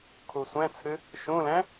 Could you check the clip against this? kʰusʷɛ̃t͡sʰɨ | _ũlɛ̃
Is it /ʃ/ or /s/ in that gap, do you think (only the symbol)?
ʃ